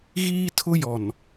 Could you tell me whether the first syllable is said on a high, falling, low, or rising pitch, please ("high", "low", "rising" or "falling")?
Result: high